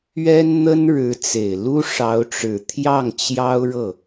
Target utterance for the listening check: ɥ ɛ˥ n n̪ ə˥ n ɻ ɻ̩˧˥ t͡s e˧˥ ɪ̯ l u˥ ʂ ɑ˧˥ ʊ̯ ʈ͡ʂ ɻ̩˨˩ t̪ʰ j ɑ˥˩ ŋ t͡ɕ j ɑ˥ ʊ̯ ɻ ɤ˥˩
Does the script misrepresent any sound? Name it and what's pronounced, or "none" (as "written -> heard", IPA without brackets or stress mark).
e˧˥ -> e˨˩